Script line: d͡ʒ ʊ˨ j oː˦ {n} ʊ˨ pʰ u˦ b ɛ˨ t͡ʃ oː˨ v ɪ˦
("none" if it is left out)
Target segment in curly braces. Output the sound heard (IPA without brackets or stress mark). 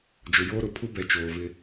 ɾ